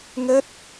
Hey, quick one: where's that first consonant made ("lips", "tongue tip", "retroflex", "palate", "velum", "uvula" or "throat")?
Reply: velum